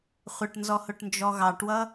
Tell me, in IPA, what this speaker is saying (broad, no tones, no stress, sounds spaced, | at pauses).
χʷ ə ʈ n z ɔ h ʊ ʈ n d͡ʒ ɔ ɣ ɑ ʈ w ʌ